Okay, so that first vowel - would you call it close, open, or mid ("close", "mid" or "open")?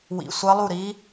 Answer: close